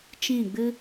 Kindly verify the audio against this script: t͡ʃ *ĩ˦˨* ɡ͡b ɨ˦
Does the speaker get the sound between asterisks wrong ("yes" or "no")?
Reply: no